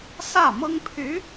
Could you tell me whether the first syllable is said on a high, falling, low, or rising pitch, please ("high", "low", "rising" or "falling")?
falling